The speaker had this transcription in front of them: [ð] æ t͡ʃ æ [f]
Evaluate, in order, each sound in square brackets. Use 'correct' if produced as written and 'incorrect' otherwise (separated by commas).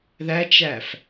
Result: correct, correct